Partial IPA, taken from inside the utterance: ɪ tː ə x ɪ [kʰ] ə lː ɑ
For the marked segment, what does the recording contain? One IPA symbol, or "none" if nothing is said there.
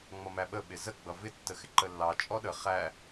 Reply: ǃ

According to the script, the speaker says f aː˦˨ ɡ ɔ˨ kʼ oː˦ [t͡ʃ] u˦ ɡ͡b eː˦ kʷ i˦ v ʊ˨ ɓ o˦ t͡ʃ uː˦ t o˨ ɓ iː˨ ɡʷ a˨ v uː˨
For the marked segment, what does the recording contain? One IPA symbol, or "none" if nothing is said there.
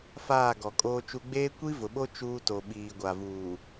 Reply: t͡ʃ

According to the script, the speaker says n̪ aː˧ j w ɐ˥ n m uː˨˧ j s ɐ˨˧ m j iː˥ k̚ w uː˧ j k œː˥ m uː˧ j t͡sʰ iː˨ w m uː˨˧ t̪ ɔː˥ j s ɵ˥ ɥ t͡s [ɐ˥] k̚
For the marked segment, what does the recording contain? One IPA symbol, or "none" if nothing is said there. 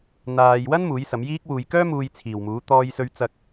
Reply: ɐ˥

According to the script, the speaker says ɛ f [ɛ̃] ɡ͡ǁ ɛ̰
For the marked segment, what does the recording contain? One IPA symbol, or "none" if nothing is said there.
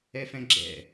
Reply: ɛ̃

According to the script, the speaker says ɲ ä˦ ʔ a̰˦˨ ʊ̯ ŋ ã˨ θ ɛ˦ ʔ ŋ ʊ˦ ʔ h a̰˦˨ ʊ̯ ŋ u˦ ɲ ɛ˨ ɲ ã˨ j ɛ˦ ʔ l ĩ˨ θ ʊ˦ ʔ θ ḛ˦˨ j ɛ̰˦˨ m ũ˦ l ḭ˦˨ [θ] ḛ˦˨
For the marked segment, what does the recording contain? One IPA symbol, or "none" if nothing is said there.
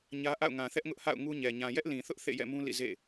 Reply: z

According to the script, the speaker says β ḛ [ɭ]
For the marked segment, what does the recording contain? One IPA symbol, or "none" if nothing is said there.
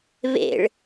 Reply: ɭ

